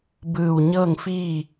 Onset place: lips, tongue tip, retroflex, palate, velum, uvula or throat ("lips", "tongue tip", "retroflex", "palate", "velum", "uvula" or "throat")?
lips